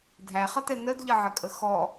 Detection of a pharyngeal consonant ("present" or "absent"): present